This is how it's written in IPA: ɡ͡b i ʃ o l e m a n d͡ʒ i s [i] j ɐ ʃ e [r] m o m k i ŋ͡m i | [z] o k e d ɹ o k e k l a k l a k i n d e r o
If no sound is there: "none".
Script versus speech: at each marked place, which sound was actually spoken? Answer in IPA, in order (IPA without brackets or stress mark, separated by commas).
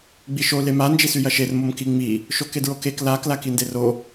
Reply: y, r, ʃ